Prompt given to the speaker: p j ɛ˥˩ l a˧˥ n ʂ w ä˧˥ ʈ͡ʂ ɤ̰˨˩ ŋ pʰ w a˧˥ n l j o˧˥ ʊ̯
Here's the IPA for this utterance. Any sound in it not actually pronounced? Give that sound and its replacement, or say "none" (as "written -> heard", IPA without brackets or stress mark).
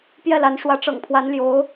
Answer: none